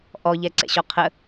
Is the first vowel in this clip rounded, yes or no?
yes